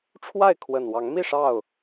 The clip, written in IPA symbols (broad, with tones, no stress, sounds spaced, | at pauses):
ʈ͡ʂʰ w a˥˨ ɪ̯ kʰ w ə˨˩ n w ɑ˨˦ ŋ m i˥˨ ʂ ɑ˥˨ ʊ̯